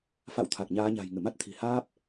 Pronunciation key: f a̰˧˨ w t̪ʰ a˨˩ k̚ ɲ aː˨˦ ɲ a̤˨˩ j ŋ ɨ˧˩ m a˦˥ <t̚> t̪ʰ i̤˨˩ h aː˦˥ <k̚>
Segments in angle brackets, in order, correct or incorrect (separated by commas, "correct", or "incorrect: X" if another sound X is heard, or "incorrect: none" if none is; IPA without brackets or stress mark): correct, incorrect: p̚